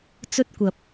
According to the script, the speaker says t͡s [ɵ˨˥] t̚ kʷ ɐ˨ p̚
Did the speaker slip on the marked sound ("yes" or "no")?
yes